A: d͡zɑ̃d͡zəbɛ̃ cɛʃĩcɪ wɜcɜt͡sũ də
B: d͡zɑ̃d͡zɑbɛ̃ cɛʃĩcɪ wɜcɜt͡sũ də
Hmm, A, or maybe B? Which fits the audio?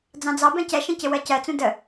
B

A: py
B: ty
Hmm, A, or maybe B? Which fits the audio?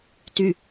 B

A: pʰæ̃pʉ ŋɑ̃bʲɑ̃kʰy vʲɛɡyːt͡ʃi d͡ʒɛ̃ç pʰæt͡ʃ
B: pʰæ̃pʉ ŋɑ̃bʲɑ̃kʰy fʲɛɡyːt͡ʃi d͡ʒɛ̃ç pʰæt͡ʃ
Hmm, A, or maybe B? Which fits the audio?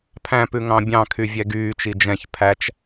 A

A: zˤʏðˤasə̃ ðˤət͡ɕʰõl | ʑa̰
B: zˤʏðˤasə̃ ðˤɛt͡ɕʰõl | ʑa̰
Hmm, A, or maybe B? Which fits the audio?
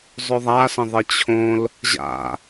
A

